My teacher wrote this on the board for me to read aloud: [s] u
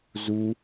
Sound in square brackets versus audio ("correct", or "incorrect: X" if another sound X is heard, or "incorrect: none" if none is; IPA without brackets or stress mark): incorrect: z